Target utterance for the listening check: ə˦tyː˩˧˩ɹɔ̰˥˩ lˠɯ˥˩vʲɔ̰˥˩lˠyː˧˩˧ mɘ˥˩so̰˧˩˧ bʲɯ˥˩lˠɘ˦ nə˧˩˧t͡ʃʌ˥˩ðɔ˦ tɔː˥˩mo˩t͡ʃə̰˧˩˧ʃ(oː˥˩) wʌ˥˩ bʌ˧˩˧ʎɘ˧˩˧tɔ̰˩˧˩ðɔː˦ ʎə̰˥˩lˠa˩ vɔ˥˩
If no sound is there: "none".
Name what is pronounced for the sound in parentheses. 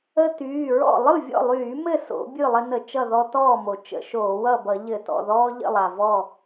oː˧˩˧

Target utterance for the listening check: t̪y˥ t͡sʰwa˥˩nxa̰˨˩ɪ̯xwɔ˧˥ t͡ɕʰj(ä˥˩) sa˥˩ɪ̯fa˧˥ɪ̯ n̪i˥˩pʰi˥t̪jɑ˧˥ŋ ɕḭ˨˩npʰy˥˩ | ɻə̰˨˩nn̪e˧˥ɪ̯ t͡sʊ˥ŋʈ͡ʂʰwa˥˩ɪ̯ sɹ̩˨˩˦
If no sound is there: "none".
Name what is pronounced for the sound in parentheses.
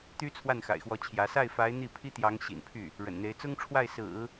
ä˧˥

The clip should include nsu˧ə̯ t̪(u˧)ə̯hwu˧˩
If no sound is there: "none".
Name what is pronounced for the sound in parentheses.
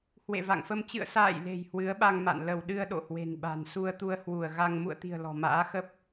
u˧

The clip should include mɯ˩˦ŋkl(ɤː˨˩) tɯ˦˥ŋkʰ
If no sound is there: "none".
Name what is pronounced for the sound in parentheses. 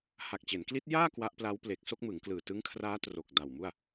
ɯː˨˩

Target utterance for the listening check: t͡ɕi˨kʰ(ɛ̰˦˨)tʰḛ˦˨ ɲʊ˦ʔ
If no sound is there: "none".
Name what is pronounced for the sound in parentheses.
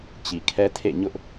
ɛ˦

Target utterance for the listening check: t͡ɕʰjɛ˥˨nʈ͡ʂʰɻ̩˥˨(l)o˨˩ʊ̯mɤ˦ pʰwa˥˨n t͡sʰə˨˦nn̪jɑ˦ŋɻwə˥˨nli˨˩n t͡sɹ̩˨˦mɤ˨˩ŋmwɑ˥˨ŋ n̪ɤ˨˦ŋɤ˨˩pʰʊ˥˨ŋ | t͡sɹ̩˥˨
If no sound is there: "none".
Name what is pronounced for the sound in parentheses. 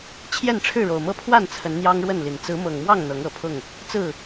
ɻ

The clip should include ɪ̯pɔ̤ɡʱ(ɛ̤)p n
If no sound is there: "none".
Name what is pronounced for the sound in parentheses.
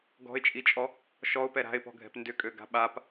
ɛ̤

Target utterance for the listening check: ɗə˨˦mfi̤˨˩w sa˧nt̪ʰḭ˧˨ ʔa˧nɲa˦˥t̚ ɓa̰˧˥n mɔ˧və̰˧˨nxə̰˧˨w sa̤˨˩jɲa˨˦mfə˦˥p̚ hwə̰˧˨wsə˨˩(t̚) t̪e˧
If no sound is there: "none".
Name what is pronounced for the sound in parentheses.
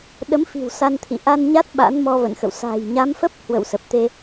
p̚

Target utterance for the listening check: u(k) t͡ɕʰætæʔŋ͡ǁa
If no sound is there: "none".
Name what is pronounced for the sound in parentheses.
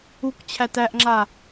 k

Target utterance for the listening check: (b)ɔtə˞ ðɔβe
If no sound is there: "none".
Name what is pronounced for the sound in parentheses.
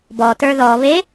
b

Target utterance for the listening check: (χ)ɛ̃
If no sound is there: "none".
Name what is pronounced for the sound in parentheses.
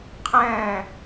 qʰ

